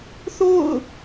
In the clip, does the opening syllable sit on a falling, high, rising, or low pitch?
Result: falling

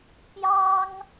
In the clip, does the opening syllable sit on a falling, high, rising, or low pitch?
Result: high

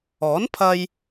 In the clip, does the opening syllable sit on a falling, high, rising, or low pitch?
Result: rising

